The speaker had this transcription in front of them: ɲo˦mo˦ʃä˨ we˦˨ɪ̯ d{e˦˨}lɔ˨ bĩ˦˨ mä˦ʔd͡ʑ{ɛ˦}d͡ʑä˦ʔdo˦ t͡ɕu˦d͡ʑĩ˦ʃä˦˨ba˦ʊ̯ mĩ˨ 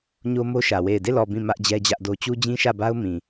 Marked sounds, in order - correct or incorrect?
correct, correct

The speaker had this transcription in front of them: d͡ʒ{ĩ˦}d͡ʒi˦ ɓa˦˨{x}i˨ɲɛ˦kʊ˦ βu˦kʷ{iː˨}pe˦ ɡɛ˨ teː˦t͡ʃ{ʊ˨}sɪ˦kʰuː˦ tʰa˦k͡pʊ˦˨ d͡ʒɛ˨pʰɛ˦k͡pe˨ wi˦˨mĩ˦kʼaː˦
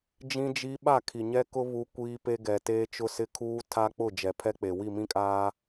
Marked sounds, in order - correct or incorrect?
correct, incorrect, incorrect, incorrect

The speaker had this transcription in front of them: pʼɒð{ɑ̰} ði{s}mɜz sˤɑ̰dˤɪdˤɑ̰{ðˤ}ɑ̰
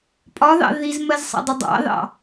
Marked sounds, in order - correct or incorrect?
correct, incorrect, incorrect

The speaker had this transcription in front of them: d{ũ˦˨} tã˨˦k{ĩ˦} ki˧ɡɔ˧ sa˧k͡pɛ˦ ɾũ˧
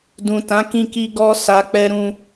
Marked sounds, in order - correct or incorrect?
incorrect, incorrect

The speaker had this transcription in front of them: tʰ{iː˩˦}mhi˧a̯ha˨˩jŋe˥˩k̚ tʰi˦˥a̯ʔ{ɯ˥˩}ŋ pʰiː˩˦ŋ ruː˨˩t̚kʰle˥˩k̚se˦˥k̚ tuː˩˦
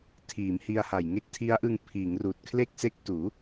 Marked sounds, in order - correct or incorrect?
correct, incorrect

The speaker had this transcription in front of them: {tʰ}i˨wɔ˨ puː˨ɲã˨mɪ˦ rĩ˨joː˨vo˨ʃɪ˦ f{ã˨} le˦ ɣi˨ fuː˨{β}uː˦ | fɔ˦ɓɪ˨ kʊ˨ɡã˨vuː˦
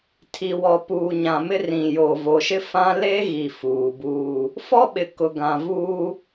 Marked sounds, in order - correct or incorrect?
correct, incorrect, incorrect

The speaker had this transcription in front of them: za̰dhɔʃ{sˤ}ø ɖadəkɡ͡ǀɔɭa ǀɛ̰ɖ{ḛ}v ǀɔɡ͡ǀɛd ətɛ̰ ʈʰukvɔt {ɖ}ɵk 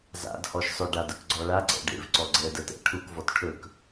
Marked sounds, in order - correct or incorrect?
correct, correct, incorrect

